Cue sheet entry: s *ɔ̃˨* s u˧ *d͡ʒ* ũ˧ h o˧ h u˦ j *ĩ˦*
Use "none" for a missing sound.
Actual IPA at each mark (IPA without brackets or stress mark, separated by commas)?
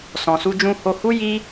ɔ̃˨, d͡ʒ, i˦